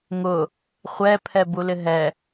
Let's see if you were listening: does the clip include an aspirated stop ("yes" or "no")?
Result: yes